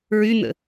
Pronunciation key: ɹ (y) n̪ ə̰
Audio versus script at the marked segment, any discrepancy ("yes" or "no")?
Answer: no